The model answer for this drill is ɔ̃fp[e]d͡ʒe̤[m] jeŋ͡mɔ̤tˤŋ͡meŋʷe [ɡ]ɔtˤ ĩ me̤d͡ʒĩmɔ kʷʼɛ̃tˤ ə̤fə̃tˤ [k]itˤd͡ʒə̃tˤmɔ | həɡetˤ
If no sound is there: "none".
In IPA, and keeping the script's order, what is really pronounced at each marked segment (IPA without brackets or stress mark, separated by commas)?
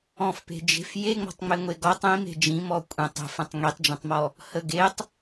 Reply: e̤, f, ɡ, ŋ